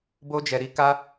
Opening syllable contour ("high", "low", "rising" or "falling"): high